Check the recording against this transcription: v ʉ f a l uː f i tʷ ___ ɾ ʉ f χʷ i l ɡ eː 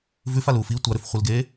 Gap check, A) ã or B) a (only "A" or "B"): B